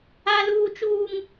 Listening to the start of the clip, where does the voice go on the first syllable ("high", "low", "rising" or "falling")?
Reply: high